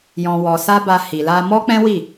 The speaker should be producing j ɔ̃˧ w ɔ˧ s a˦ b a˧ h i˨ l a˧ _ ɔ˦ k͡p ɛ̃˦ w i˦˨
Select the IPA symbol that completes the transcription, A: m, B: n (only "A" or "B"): A